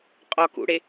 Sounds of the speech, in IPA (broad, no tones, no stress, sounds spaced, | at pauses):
qʼ ɒ k ṵ ɽ e